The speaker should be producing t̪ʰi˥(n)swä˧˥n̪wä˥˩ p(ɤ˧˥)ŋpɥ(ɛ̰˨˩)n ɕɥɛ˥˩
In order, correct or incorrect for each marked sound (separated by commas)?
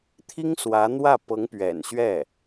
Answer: incorrect, correct, correct